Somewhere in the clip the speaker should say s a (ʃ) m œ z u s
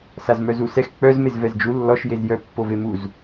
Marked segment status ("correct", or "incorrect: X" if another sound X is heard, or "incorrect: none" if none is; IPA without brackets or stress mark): incorrect: z